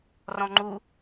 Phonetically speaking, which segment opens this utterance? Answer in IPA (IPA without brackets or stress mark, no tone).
r